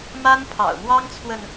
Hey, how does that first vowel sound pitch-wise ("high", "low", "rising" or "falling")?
high